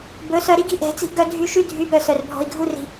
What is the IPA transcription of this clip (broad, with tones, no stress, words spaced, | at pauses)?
bɵ˨˦ sœ˧ɾi˦ɡi̤˦ ʔɛ̤˨˦t͡si̤˦ʔɡœ˦ dʱy˧ʃy˦ dʱy˨˦bœ˨ sœ˨rbʱɔ̤˧i̯ɡʱu˦ri̤˧